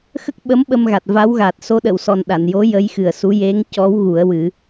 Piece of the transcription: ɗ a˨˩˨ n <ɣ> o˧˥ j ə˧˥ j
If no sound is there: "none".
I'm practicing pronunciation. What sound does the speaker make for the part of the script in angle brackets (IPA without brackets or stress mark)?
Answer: j